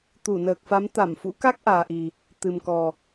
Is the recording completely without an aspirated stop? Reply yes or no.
yes